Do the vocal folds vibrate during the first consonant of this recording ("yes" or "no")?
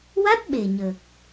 yes